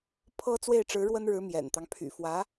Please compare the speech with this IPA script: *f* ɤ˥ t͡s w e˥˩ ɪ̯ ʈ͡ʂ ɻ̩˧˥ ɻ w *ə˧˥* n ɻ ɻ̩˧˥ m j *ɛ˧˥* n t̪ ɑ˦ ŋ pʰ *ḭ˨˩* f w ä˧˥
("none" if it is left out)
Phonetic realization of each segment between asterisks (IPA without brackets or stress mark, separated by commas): pʰ, ə˥, ɛ̰˨˩, y̰˨˩